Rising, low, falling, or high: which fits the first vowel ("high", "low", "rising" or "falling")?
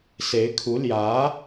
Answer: rising